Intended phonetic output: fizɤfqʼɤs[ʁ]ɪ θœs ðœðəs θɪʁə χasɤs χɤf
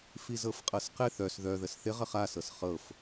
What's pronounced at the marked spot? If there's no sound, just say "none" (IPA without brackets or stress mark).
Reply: q